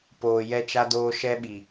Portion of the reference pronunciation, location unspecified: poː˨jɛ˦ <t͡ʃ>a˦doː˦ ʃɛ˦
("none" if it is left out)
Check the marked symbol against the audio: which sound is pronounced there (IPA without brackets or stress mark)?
t͡ʃ